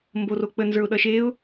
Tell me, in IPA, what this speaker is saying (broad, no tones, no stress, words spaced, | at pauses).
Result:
mborok͡pə nzə˞ʊ̯ɗʌʃeʊ̯